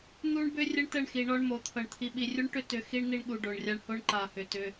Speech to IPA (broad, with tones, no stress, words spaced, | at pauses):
n̪u˦ɳbʏ˦ rʲə˦ɳtə˦˨ɳxi˨ ɳɔ˦ɳmo˨˦t̪ʰɤ˨ɳ t̪ʰi˨ɓi˨rʲu˦ɳʈʏ˦ tʏ˦ xi˦ɳ n̪i˦ɳɠu˨ɖo˨ɳrʲa˦ɳ ho˦ɳ ǃa˨hʏ˨tʏ˦